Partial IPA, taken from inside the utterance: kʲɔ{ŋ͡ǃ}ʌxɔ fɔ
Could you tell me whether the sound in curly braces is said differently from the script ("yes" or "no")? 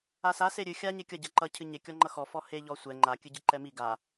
no